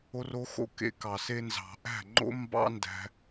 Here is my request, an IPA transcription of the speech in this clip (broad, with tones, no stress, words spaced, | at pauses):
o˧ro˧xo̰˦˨ kḛ˦kɑ˨se˦ nzɑ̤˨ʔæ̤˦˨ŋ͡ǃo̰˦ mbɑ̰˦ndæ̤˧